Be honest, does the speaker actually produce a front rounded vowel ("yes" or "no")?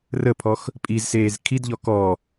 no